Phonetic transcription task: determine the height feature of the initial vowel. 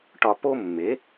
low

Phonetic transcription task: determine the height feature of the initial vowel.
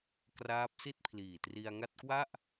low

